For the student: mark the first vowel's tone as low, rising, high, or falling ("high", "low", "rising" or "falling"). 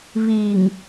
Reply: low